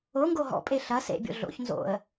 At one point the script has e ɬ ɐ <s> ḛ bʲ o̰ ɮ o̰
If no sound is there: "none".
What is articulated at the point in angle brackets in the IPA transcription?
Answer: s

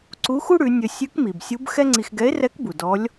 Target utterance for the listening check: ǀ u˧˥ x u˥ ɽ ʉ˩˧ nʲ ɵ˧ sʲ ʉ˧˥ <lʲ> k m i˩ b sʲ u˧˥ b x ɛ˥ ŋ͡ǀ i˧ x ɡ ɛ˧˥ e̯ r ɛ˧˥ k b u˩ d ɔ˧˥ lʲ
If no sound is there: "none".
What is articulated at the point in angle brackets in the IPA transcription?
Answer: none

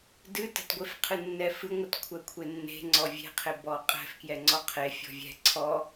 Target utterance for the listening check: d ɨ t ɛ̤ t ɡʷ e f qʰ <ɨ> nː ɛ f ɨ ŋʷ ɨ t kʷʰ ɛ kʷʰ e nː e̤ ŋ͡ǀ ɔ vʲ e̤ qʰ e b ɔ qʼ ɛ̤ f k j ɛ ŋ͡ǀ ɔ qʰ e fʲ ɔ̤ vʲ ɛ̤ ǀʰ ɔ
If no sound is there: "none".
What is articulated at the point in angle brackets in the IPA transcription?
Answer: ɨ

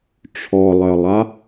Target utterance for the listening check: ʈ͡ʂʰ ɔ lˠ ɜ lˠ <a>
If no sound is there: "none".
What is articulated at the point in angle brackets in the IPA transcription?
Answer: a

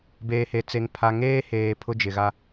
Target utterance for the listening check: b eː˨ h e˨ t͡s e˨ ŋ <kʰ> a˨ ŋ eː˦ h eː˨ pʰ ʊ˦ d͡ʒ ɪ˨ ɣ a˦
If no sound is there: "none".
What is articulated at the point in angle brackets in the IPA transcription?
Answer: pʰ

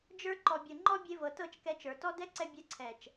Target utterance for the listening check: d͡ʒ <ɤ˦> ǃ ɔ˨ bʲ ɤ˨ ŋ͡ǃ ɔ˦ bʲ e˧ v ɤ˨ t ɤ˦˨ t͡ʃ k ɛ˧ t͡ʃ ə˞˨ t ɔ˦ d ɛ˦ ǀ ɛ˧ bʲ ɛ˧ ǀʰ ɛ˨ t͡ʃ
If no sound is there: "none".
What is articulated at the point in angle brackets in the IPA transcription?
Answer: ə˞˦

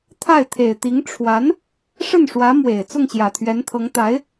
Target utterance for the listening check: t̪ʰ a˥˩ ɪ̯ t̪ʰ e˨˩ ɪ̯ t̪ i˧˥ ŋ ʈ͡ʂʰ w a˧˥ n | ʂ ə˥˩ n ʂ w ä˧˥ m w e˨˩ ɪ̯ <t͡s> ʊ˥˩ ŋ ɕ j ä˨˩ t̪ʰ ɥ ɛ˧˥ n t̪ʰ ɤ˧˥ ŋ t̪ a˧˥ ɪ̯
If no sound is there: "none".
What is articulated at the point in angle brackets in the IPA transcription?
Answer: t͡s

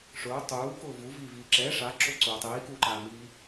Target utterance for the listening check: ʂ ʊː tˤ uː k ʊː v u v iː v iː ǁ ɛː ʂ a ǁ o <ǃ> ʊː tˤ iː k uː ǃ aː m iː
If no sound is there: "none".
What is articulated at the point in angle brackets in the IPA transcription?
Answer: ǀ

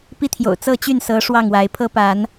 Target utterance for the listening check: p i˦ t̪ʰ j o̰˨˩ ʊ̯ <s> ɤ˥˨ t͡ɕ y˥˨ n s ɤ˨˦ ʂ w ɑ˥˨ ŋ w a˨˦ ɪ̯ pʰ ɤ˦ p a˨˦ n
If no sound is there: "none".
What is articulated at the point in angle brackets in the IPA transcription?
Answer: t͡s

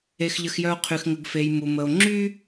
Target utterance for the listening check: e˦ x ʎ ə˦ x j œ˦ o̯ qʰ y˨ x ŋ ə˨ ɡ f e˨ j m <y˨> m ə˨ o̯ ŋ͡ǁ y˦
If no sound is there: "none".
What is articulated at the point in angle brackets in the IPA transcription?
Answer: u˨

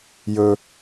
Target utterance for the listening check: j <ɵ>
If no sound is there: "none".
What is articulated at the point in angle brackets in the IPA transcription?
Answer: ɵ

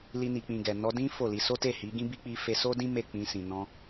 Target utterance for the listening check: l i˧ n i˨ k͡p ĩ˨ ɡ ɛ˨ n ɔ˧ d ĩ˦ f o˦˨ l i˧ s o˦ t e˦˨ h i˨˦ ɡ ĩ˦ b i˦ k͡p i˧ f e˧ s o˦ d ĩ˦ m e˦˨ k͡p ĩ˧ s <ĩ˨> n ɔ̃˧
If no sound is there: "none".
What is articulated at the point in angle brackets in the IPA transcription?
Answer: ĩ˨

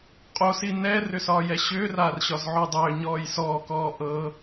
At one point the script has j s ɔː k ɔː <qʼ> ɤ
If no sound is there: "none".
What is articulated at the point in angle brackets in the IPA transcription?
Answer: ʔ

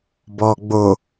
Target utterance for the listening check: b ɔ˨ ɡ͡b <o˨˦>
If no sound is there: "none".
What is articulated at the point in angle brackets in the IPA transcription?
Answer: o˨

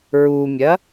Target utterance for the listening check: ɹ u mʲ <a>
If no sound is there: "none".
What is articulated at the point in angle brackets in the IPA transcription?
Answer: ɐ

